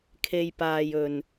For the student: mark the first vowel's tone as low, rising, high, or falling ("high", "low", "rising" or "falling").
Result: low